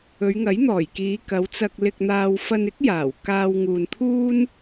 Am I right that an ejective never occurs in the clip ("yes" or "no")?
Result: yes